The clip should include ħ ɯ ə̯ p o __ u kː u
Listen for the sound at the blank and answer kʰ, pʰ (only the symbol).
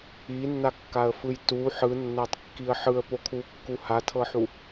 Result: kʰ